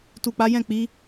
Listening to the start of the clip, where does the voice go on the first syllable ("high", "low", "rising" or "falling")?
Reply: low